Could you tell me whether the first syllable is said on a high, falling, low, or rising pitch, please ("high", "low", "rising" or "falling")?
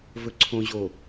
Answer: low